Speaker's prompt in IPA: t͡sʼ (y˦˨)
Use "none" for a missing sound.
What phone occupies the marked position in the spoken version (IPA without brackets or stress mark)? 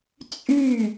y˦˨